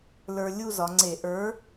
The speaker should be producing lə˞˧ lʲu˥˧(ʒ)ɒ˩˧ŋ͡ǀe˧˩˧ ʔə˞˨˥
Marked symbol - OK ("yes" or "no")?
no